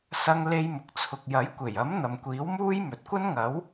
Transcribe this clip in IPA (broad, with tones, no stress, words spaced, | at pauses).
sɐ˥ŋ le˥jmʊ˧k̚t͡sʰʊ˧k̚ jɐ˨˥jkʷe˨˩j ɐ˨˥m n̪ɐ˨mkʷiː˨˥wmuː˥j mɵ˨t̚kʷɐ˥nŋɐ˨˥w